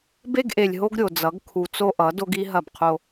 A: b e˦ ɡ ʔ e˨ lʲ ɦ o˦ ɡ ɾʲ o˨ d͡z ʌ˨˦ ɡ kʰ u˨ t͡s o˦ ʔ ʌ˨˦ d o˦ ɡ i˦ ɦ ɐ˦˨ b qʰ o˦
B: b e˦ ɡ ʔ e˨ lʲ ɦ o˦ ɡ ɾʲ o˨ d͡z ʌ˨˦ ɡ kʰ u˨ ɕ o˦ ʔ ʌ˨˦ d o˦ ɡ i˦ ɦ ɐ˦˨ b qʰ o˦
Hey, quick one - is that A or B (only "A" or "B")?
A